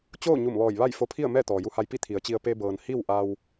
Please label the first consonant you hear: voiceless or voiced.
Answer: voiceless